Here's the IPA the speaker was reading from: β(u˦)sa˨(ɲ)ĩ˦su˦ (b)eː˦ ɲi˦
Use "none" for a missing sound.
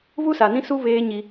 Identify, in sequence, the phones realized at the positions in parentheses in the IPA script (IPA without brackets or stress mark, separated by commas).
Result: u˦, n, β